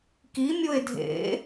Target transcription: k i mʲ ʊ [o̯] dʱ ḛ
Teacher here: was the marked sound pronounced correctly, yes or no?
no